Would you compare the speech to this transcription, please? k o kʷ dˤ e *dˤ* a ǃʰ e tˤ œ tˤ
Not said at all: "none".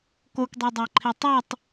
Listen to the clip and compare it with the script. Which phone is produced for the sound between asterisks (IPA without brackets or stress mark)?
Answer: dˤ